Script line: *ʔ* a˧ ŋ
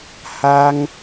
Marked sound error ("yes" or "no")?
yes